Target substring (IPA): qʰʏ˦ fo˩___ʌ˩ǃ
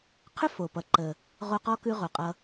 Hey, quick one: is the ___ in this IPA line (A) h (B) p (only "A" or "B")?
B